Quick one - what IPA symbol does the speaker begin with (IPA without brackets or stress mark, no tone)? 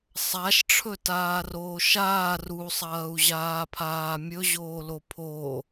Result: sˤ